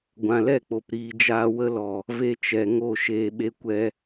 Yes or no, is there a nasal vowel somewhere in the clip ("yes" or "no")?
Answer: yes